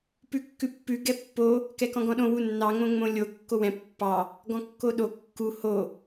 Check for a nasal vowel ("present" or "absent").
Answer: present